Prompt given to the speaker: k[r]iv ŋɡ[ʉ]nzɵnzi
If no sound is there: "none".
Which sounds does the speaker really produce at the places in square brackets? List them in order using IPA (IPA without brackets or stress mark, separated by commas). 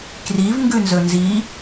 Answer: r, ʉ